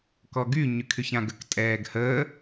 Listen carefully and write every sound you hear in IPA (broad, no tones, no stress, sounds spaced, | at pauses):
k ɔ ɡ y ɲ y kʰ y ç ã ɡ ə k tʼ ɛː ɡ h əː